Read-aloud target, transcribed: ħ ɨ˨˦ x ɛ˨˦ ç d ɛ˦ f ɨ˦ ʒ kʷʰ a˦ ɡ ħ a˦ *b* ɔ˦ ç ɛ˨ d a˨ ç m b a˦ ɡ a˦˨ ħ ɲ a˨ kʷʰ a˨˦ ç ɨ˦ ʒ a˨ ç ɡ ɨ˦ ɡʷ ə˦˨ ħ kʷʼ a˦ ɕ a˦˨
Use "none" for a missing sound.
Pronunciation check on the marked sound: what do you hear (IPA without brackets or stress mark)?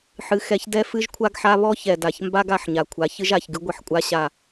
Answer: β